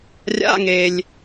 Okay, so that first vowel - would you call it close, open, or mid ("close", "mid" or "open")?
open